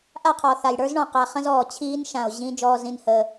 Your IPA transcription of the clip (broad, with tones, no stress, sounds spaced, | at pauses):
ʔ a˦˨ qʰ ɔ˨ θ a˨ j ɽ ə˞˦ z ɳ ɔ̃˨ q a˨ χ ə̃˦ z ɔː˨ t͡ɕʰ iː˦ n ʃ ã˨ o̯ ʑ ĩ˦ d͡ʒ ɔː˦ z ĩ˦ n h əː˦